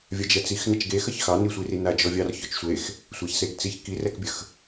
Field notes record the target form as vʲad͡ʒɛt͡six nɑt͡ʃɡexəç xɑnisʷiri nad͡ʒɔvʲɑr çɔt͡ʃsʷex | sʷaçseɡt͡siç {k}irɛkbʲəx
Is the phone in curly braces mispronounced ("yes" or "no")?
no